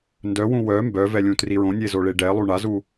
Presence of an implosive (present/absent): absent